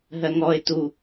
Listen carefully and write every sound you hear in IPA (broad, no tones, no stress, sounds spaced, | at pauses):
ɦ ɜ ŋ ɔ ɪ̯ t u